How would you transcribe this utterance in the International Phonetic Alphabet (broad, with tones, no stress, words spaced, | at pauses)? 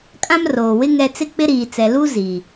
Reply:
kʼã˦mroː˨wɪ˦ ŋɛ˦ t͡sɪ˦k͡pɪ˦ɾiː˨t͡sɛ˨ lu˦ zi˨